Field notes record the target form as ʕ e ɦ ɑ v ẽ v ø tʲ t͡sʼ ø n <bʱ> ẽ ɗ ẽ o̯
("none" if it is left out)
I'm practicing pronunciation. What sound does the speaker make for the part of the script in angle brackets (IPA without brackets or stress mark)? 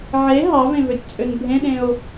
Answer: bʱ